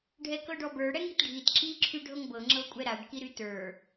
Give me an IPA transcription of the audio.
ɖʱɛkɤɖɔbə˞ ɽɛŋitɖʱit ǁi ǁʰyɖʱɤŋbɤ ŋ͡ǁɤkʷʼɛɾaɖ kiɾytə˞

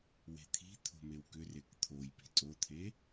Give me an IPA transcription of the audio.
we̤t̪ʰi̤ t̪ʰo̤mewkʏ rekt̪ʰojpi̤ tʼot̪ʰe

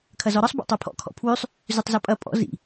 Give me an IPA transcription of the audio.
kʰɐzɔɾɒsˤ bo̰tˤopʰɔ̰ kʰɔ̰pʰwʉsˤ | zʉtˤzɒpʼɐ pʼɔ̰ zḭ

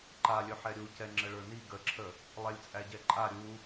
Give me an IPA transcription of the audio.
ǃalʲɵ ħɛɾʲu cɛŋ͡ǁəɭə˞ni ɡəǁʰə | lˠɛlʲt͡sʼæɟɛǃʼa ɾʲu

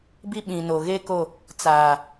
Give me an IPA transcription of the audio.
bi˦ɓĩ˨no˨ ɣe˦ko˦˨ | t͡saː˨

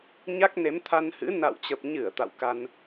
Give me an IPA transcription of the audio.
ɲa˦˥k̚ne˨˦mt̪ʰa˧nhɨ̰˧˥ na̰˧˨wt͡ɕə˨˩p̚ɲɨ˧˩ə̯ t̪a̰˧˨wka˧n

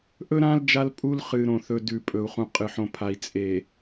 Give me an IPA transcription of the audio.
ʔɵ˦ɾã˦l d͡ʒa˦lpʼu˦l χɨ˨ɾõ˨θɵ˨ dʉ˨pʼɵ˨u̯χũ˨ qʼɨ˨ħõ˨pʰa˨i̯ t͡sʼe˨

